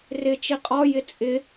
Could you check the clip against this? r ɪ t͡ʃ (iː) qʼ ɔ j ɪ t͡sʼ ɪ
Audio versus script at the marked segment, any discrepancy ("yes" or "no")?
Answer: yes